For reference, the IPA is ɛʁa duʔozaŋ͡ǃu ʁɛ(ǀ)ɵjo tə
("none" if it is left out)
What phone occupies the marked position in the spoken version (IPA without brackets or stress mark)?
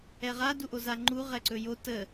ǀ